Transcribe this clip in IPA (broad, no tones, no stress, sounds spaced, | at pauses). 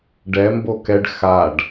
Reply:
ɖ ɛ m b o k ɛ ɖ x a ɖ